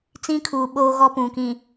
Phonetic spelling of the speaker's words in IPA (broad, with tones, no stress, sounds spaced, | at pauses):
t͡s ĩ˦ kʰ uː˨ ɓ oː˦ ɣ ɔ˦ p ũ˨ k ĩ˨